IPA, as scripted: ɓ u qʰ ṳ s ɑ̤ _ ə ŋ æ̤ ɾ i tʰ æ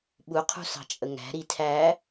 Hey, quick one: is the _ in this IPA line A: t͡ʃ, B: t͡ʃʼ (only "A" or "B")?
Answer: B